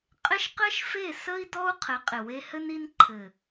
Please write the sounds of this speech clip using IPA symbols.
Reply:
qʼɪ˦ʃqɘ˦ʃfe˦˨ sə˦i̯ dɔ˦u̯qʰɘ˨˦ qʼɪ˨we˧hɘ˦ni˦n ǃʰɘ˨

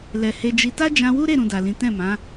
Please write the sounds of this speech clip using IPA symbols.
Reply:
lɛ˨he˧d͡ʒi˧ ta˦d͡ʒã˧wu˦ɾe˦˨ ɾũ˧da˨lĩ˨˦ tɛ̃˦˨mã˨˦

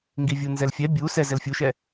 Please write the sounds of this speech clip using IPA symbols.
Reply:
ŋɡivʲunzɛlfʲɛ bʲu sɛ zɛlfʲuʃɛ

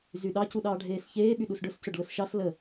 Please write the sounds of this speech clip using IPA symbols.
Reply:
zyɗɑ cuɗɑːɖʱeːsçeː ɓyɗusɖʊs cʊɖlʊsʃɑs lə

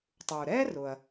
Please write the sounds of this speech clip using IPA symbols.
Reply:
tˤu˩ɾɛ˥rʊ˩ɐ̯

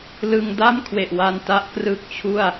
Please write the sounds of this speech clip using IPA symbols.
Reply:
lɯ˧ŋda˥˩mkʰwe˨˩ʔwa˧n ta˦˥ʔkrɯ˦˥k̚t͡ɕʰu˥˩a̯

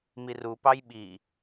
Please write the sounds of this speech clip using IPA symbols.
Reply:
mirupɑj ɓi

